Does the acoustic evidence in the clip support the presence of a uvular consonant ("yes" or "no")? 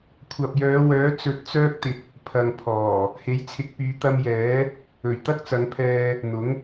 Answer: no